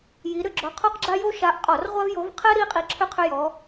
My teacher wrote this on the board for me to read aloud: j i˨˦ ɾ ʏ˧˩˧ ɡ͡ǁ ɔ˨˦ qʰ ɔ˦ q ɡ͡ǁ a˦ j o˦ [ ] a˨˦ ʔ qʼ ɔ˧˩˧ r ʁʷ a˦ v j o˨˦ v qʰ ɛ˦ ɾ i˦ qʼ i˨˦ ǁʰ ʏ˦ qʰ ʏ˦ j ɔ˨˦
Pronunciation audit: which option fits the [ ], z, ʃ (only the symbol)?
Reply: ʃ